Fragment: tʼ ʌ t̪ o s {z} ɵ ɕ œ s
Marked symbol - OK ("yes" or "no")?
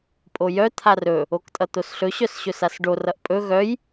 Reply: no